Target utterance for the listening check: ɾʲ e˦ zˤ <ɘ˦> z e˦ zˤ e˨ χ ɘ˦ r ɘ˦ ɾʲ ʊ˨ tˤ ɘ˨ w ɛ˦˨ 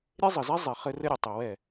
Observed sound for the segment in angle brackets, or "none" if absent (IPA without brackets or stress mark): ɘ˨